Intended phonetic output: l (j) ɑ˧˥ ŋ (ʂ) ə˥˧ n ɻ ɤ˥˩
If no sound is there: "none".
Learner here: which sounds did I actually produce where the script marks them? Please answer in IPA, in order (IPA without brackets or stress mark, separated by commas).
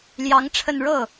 j, ʈ͡ʂʰ